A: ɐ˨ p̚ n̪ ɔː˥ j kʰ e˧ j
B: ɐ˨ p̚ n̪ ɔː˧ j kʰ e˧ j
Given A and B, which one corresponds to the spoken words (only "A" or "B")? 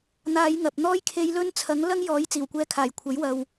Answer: A